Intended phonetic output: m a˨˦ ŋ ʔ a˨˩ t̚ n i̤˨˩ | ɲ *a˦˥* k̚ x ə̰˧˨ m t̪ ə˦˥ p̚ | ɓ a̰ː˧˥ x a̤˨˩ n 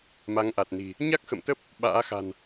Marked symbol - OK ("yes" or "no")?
yes